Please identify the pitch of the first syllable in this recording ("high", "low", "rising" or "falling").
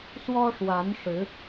high